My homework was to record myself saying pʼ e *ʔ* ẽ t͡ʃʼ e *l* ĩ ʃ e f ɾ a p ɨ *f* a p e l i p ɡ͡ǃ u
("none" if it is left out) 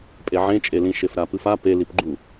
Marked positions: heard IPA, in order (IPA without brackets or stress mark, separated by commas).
ʕ, l, f